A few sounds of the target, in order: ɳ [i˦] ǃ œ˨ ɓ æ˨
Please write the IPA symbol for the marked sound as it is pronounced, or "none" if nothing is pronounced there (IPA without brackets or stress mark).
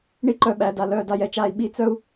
i˦